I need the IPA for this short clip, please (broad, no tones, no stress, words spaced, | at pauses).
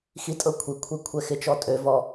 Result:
xitʼɤ kʷʰikʷʰe kʷʰɛxɪt͡ʃɔ tʼøvɔ